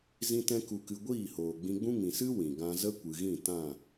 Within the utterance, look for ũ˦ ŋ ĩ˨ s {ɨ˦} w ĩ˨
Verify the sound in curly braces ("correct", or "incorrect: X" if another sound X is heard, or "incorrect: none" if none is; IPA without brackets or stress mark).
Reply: correct